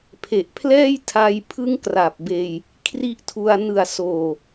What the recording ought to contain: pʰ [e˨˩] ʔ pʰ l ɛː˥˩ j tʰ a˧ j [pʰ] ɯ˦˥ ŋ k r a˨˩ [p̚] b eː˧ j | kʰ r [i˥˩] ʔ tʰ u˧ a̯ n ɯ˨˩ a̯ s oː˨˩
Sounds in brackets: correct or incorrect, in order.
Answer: correct, correct, correct, incorrect: i˦˥

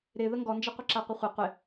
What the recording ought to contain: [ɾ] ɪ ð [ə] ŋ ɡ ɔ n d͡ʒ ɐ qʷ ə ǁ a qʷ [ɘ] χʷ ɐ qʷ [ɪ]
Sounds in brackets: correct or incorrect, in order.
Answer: correct, correct, correct, correct

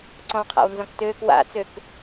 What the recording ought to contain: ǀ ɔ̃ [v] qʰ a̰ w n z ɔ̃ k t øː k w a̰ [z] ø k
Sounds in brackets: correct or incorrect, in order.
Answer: incorrect: w, incorrect: t͡s

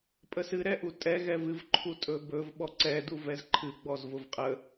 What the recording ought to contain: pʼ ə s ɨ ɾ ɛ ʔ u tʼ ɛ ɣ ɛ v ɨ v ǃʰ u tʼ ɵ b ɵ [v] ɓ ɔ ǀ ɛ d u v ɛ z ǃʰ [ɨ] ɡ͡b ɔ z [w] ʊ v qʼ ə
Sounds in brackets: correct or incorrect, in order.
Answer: correct, correct, incorrect: v

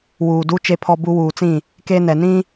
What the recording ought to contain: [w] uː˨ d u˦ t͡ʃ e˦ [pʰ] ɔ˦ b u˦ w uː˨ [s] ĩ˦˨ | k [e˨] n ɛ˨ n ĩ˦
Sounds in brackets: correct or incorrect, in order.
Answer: correct, correct, incorrect: t͡s, incorrect: e˦

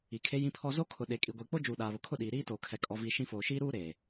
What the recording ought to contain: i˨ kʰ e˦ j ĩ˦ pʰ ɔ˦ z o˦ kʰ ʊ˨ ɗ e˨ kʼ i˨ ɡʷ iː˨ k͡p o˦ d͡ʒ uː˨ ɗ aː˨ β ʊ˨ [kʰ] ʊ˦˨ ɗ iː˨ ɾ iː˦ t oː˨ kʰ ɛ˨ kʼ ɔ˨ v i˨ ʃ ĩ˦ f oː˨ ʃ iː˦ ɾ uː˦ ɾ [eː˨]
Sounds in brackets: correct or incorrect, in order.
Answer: correct, correct

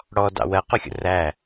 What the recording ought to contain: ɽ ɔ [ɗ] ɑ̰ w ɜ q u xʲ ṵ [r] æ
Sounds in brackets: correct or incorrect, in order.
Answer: incorrect: d, correct

